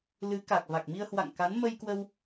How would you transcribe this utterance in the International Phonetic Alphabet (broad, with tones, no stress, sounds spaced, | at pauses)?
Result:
l ɨ˨˦ k a˨˩ k̚ v a˨˩ k̚ m i˧ ə̯ h w a̰˧˨ ŋ k a˨˦ n m ə˧ j k w ə˧ w